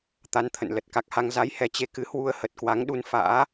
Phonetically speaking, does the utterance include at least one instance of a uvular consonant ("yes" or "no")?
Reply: no